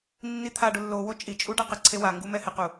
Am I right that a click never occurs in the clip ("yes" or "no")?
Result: no